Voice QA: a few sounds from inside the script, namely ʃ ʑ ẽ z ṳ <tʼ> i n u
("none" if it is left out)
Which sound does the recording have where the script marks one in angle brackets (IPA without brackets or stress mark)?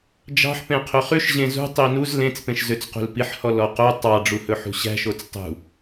tˤ